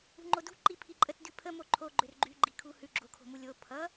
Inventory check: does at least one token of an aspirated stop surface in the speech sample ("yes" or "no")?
yes